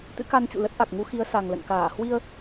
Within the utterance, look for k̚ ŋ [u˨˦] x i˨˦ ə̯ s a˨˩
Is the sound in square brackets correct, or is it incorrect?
correct